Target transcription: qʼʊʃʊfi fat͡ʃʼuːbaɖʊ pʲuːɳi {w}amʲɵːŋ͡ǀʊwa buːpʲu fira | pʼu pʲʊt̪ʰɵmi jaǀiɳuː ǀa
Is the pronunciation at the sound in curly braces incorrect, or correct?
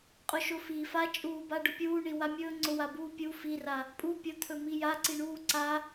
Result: correct